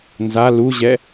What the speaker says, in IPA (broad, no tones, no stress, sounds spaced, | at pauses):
n z a l u ʑ ɛ